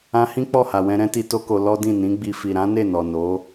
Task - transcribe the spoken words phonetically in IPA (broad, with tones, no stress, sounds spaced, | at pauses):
ã˧ h ĩ˦ k͡p ɔ˦˨ h a˨ w ɛ̃˧ ɾ ɛ̃˦ t i˧ t o˦ k o˧ l ɔ˦ d ĩ˦˨ n ĩ˨˦ ɡ͡b i˧ f i˨ ɾ ã˨˦ n e˦˨ n ɔ˨ n o˨˦